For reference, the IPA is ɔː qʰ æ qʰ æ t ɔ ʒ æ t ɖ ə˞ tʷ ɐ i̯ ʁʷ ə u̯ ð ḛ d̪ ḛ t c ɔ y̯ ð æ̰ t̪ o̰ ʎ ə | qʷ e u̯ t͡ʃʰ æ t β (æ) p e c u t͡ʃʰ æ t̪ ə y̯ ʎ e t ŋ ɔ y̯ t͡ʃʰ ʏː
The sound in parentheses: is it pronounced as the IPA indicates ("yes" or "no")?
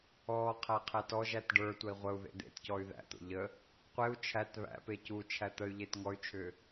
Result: no